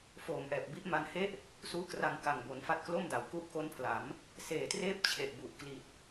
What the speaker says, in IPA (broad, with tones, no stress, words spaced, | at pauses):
foː˨˩m ʔɛː˨˩p̚bi˥˩ʔma˧nhe˥˩ʔ | suː˦˥kra˧ŋ ka˨˩ŋbo˩˦nfa˦˥t̚klo˥˩m da˩˦w ku˦˥ʔko˦˥npʰla˩˦m | seː˨˩treː˥˩p̚t͡ɕʰe˨˩ʔbu˨˩ʔ kli˨˩t̚